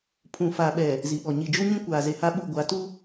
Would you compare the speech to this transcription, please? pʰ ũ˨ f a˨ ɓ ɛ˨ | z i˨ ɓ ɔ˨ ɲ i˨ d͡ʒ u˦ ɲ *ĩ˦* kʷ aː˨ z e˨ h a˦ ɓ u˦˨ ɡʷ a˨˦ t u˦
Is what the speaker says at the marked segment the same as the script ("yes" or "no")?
yes